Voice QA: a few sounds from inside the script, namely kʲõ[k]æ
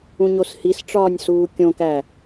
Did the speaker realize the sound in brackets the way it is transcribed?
yes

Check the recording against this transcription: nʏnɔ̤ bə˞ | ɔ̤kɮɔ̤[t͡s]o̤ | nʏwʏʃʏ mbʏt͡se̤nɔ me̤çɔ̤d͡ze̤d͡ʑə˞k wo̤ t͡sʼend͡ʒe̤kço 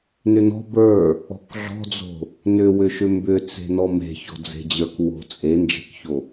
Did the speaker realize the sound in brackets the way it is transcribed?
no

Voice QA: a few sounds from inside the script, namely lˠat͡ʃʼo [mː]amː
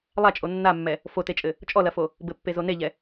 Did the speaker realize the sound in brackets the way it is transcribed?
no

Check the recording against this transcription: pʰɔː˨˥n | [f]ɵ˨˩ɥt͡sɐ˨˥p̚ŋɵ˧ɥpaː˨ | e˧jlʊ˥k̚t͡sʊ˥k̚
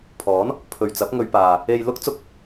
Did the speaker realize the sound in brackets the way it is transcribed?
no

